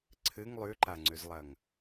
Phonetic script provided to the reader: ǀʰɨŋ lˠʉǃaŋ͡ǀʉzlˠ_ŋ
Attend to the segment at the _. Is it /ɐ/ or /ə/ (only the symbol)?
ɐ